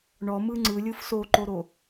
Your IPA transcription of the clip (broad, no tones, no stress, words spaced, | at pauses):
ɳɔmɯ ŋ͡ǀɯlʲɯf soǃoɾo